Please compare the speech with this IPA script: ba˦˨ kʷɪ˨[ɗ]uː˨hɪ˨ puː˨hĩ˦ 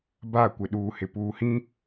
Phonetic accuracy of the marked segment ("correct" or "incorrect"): correct